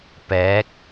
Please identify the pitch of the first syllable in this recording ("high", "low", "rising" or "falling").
rising